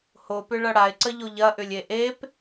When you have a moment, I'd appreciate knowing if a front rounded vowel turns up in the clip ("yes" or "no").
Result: yes